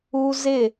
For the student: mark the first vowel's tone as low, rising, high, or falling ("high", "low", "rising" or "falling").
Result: high